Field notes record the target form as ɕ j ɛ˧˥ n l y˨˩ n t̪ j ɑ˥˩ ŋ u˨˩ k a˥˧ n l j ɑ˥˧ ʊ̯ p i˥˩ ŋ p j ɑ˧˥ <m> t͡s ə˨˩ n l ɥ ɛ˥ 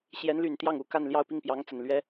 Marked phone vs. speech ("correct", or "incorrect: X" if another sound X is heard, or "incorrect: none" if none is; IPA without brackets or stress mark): incorrect: ŋ